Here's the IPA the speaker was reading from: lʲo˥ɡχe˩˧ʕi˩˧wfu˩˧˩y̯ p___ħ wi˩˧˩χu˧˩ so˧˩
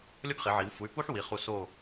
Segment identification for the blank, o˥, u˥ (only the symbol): u˥